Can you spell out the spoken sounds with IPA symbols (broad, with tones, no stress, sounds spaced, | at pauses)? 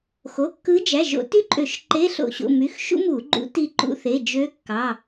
x o˩˧˩ kː ɯ˧˥ d͡ʒ æ˩˧˩ ʒ o̰˧˩˧ t y˥ ǃʼ ø˧˩˧ ʃ ǃ e˧˥˧ ɬ o̰˧˩˧ ɕ o̰˩˧˩ m y˩˧˩ x ʃ ṵ˥ m u˧˩˧ ɡ͡ǃ ṵ˧˥ t i˧ ǃ ṵ˧ θ e˩˧˩ d͡ʒ ø˧˥ kː ɑ˩˧˩